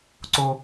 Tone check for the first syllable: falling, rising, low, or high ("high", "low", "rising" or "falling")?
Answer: high